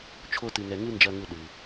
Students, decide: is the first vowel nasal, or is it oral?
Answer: oral